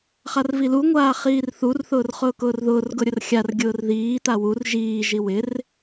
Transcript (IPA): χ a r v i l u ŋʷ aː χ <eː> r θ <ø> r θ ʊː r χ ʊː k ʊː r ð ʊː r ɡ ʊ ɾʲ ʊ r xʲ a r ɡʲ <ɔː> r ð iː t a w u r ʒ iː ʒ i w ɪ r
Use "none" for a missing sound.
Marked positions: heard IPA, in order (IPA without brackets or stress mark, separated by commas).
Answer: iː, u, ʊː